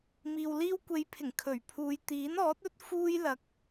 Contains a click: no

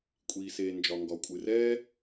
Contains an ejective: yes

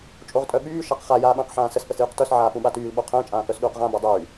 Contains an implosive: yes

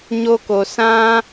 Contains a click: no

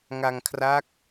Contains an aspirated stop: yes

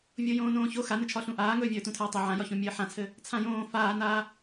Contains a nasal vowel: yes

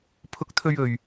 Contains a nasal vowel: no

